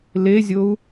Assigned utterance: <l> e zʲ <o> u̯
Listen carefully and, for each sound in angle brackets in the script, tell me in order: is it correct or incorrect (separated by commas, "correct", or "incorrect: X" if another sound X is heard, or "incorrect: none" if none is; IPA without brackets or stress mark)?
correct, correct